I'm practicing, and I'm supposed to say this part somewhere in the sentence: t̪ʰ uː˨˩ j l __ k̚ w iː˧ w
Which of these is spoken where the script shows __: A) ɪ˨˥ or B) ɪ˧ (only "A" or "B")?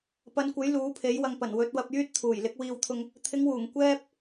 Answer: A